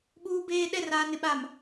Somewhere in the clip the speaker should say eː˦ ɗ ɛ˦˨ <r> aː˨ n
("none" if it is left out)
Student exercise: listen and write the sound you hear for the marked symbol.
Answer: r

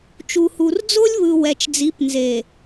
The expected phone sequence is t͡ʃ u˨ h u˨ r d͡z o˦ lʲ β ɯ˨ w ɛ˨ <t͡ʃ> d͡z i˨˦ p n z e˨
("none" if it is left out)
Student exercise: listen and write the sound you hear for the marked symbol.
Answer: t͡ʃ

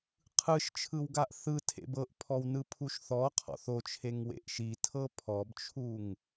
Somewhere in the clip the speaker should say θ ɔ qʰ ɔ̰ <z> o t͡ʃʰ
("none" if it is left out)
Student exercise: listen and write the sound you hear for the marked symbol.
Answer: θ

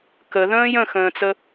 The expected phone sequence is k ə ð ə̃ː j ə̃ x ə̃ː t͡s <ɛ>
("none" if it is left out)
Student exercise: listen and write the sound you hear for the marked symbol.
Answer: ə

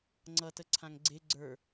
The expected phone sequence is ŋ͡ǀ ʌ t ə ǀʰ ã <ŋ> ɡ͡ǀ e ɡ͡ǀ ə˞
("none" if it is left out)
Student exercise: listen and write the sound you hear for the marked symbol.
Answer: ŋ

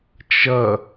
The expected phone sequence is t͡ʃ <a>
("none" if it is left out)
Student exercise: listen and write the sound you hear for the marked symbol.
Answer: ʌ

